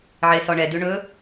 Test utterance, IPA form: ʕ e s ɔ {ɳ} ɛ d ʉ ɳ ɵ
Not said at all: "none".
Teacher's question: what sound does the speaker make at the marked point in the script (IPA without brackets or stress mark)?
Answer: ɳ